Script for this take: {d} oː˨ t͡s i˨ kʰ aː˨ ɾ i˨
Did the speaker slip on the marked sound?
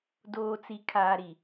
no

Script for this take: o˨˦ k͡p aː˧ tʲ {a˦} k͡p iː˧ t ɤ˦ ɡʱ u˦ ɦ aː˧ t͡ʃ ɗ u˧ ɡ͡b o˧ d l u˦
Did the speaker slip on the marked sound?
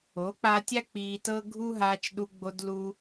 no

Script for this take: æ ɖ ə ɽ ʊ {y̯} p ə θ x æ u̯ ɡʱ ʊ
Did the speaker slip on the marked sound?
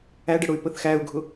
no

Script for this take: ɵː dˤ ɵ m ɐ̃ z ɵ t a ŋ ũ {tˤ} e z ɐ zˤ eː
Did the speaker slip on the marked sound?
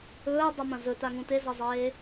yes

